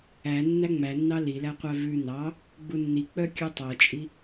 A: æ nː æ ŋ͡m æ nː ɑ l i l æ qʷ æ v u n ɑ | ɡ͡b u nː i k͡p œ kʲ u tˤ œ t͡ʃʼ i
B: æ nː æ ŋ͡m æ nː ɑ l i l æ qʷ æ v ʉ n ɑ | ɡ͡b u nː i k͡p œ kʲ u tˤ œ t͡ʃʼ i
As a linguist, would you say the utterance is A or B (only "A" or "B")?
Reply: B